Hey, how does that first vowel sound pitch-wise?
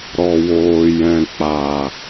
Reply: low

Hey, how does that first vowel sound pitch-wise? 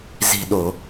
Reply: low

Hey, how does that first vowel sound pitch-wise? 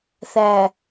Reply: low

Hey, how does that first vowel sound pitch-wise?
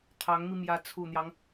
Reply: rising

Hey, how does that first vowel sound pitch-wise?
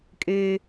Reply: high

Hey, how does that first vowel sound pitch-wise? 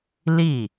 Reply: falling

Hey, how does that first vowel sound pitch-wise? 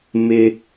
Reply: high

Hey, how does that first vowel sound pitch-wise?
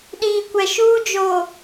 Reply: low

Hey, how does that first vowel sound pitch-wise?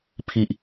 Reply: high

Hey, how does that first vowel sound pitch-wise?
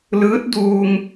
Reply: rising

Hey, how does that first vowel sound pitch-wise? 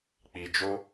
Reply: low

